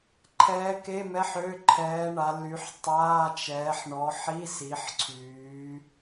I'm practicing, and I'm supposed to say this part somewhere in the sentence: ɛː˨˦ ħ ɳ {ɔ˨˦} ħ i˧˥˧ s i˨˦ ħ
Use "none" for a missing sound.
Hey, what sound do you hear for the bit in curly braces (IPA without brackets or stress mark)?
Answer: ɔ˨˦